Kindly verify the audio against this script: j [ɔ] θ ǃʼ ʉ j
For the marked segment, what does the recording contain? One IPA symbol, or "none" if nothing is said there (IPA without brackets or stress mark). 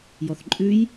ɔ